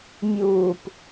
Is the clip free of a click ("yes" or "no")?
yes